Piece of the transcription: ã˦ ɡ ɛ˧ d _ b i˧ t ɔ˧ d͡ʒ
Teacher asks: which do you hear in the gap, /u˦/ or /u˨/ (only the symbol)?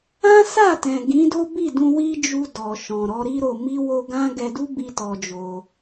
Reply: u˦